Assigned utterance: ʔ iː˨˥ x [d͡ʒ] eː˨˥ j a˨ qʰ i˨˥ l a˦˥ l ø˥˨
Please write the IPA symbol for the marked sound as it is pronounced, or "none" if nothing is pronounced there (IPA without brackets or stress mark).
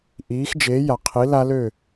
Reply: d͡ʒ